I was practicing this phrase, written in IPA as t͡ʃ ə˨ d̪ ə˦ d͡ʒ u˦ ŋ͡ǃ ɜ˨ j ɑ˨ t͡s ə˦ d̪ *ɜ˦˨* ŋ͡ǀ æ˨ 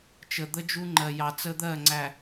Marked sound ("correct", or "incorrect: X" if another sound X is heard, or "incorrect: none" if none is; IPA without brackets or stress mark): correct